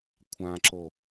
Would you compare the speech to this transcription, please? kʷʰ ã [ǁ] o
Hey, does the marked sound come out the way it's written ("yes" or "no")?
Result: yes